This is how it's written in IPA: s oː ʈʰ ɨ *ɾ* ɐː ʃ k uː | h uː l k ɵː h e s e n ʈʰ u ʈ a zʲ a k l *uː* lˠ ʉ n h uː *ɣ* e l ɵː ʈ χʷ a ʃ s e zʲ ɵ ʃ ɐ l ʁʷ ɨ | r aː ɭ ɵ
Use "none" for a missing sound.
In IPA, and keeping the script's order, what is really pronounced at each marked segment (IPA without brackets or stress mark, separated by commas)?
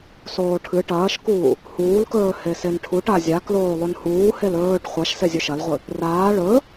ʈ, oː, h